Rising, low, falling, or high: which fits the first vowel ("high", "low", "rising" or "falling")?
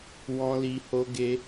high